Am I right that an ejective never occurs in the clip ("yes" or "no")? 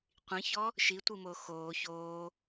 yes